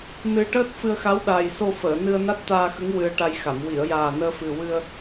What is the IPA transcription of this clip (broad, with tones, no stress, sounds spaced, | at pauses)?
n ɨ˧ ʈ əː˦˥ t̚ f ɨ˧ ə̯ x a˧˥ w ɗ aː˨˩ j s o˧ f əː˨˩˨ n ɨ˧ ə̯ n a˦˥ t̚ t̪ aː˧ x ə˧˥ ŋ w ɨ˧ ə̯ ʈ a˧ j x a˨˩˨ m w i˨˩˨ ə̯ j aː˨˩ n əː˧ f ɨ˨˩ w ɨ˧ ə̯